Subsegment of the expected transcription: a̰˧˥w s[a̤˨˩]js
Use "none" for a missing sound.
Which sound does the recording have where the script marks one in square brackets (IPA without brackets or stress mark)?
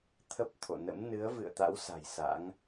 a̤˨˩